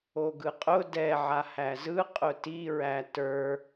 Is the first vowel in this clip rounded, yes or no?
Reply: yes